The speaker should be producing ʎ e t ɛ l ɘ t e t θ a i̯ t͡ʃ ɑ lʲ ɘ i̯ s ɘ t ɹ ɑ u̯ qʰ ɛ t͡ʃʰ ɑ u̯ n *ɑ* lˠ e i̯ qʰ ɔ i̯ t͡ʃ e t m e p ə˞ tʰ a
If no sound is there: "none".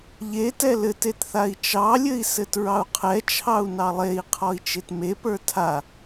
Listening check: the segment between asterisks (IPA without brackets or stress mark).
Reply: ɑ